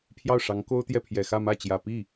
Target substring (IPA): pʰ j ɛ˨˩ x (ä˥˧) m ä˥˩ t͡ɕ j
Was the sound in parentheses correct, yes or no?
yes